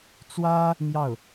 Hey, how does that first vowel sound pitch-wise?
high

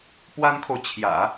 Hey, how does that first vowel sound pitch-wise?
high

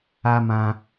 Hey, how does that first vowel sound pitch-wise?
high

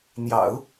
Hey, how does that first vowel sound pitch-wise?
low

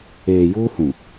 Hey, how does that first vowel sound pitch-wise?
low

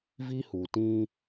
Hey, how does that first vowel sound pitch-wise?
high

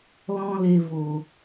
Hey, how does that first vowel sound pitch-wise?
high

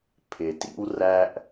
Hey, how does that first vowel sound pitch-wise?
low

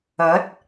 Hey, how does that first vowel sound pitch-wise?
rising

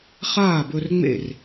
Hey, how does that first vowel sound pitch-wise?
falling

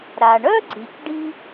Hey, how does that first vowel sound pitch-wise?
low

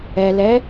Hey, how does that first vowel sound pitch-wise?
low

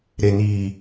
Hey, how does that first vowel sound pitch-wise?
low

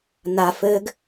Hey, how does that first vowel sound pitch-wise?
low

